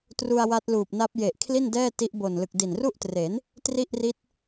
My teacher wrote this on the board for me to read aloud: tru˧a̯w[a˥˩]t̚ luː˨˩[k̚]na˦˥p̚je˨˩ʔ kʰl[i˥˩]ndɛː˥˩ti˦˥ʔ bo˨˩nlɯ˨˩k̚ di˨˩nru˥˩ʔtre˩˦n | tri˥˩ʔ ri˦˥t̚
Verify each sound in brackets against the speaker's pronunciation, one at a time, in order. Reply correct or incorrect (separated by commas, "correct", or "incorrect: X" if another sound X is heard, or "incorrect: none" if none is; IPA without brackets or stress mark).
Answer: incorrect: a˦˥, incorrect: p̚, correct